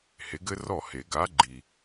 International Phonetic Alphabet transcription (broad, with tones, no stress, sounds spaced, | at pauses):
h e˨˥ ɡ ɘ˥ r ɔ˥˩ h e˨˩˦ ɡ a˨˥ ɡ͡ǃ i˨˩